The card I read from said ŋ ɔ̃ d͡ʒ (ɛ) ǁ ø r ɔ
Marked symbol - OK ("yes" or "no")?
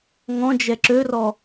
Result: yes